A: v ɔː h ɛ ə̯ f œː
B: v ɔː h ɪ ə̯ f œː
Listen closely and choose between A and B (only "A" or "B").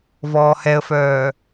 A